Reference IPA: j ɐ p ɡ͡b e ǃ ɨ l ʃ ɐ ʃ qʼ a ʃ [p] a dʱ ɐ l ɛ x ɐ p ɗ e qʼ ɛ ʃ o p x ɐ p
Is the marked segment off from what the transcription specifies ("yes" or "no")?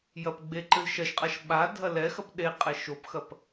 yes